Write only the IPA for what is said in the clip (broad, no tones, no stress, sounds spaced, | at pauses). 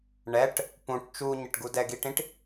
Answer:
ɳ ɛ ʈ | p ũ ʈ t͡ʃ u ɲ ɛ ʈ ɡ u d ɛ ɡ i ʈ ĩ ʈ